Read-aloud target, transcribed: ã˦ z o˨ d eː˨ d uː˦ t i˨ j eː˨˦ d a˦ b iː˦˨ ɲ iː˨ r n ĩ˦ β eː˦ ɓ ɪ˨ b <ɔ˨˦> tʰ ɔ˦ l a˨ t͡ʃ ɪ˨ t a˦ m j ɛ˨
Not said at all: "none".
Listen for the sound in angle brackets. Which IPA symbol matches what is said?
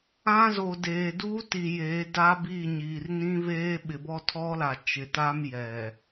ɔ˦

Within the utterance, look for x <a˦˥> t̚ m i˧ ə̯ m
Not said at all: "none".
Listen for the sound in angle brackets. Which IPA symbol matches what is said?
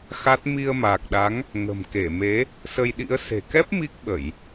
a˦˥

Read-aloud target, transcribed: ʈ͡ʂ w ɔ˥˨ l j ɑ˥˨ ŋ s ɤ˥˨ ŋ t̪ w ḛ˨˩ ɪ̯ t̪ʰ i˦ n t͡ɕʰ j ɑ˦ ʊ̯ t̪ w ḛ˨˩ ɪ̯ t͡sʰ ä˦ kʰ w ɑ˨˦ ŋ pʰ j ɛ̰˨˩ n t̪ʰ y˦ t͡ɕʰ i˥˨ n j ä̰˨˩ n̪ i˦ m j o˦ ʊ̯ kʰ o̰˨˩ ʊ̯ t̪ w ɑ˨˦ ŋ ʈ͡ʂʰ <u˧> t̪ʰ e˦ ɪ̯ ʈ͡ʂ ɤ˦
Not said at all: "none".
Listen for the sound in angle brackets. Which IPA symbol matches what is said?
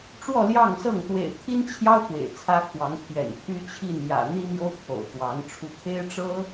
u˧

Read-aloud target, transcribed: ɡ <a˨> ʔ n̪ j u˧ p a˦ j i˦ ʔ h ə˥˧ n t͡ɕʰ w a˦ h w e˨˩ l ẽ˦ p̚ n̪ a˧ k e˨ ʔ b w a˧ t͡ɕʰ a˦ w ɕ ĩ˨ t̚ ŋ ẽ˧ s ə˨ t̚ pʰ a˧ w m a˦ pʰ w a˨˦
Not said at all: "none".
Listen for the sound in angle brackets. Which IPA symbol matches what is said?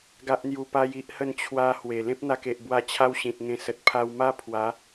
a˦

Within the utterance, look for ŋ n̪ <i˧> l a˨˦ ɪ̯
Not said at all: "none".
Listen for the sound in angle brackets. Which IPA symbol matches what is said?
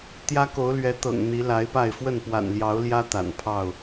i˨˦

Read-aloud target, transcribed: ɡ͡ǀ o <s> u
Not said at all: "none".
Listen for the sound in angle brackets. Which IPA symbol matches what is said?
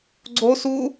s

